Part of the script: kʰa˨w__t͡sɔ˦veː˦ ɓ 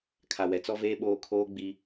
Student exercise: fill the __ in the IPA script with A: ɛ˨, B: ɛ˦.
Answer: A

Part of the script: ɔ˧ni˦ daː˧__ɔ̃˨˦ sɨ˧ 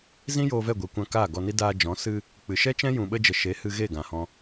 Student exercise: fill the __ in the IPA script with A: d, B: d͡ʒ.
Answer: B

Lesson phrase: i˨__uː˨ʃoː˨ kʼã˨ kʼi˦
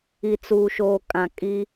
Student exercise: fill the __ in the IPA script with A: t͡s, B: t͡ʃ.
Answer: A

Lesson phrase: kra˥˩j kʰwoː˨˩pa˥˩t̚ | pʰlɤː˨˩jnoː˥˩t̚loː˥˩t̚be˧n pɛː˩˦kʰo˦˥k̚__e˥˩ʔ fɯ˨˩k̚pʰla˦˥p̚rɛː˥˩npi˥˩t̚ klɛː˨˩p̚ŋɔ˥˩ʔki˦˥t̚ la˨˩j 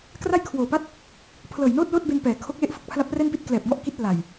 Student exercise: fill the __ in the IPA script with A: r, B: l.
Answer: B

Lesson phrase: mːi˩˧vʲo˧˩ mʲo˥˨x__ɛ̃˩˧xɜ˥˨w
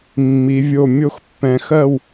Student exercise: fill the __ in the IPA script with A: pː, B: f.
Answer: A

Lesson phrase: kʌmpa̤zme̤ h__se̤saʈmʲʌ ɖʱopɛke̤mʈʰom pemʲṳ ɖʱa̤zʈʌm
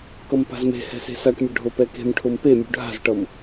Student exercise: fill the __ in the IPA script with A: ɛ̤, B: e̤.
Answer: A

